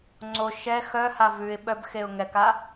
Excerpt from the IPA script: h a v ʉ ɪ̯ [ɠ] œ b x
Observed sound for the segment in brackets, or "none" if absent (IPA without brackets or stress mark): ɓ